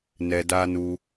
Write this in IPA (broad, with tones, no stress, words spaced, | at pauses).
nɛ˨da˧nu˧